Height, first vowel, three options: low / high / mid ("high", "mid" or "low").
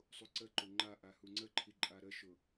high